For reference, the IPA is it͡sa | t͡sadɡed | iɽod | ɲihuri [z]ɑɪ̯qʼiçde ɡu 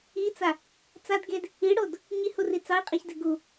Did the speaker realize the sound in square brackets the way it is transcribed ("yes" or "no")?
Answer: no